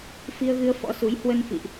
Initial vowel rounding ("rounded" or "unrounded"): unrounded